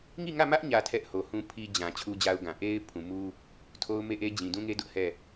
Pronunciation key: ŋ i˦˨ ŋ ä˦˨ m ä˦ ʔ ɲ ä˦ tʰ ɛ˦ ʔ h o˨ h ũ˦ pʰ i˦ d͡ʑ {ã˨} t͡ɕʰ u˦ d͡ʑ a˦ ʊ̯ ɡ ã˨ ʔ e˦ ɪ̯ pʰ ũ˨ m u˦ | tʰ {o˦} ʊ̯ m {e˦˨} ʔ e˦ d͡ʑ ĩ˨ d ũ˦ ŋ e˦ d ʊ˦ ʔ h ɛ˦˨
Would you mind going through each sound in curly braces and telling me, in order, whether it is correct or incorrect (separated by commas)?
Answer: correct, correct, correct